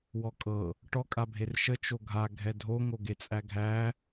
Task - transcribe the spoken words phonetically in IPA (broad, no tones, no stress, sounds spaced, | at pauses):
w ɔ kʼ ɤ | ʈ ɔ kʼ a bʱ e r ʃ ə t͡ʃ o ɡʱ a ɡʱ ɛ dʱ o ŋ o ɡ e t͡sʼ æ ɡʱ æ